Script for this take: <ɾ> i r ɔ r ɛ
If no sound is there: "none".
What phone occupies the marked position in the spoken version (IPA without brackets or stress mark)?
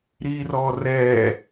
ɾ